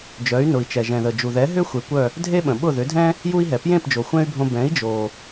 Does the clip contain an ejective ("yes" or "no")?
no